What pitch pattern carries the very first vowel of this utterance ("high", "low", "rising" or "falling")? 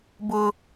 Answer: high